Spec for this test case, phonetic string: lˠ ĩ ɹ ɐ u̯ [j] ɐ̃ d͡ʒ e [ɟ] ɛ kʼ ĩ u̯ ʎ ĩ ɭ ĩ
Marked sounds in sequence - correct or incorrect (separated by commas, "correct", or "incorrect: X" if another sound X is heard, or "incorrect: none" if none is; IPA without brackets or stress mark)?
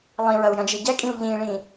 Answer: correct, correct